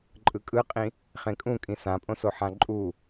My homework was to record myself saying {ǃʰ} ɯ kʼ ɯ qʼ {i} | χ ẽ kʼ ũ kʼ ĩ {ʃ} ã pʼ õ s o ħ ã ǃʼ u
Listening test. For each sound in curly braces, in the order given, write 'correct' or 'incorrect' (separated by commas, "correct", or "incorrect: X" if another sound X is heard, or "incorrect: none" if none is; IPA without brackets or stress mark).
incorrect: ǃʼ, incorrect: ĩ, incorrect: s